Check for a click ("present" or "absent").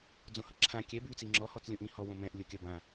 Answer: present